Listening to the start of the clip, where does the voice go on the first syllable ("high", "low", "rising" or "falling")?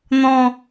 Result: low